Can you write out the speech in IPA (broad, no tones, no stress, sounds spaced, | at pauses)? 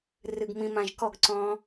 r ɨ ɡ m ĩ m ã ʒ k ɔ ɡ ǀ ɔ̃ː